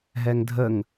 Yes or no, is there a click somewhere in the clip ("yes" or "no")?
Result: no